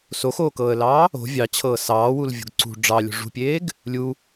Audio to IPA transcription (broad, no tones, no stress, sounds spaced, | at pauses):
s o x oː k ɤː ə̯ l ɑː | o̤ vʲ ɑ t͡ɕʰ ɤː s ɑː w u l vʲ o̤ ɡ ǀ ṳ ɖ͡ʐ ɑ lʲ o̤ ʐ ṳ pʲ eː ɡ | lʲ u